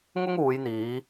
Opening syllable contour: high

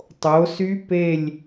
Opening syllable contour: rising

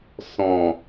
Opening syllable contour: low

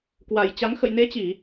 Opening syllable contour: low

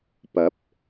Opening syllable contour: rising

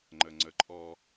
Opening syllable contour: low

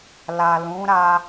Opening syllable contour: low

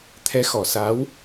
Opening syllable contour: rising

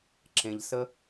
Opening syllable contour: low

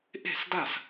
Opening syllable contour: falling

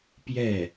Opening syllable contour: falling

